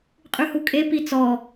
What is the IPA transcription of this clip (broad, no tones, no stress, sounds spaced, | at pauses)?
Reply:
qʼ ʉ h u kʼ e p i t͡s ɔ